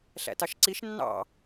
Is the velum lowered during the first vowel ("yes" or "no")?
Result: no